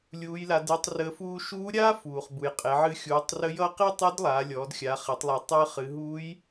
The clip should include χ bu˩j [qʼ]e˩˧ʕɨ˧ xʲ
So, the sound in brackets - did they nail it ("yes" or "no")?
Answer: yes